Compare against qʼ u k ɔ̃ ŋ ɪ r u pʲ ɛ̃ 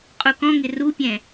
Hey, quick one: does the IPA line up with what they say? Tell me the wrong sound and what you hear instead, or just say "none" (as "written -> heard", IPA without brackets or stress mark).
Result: none